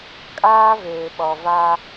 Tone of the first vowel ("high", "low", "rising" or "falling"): high